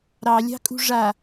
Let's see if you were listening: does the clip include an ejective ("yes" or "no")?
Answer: yes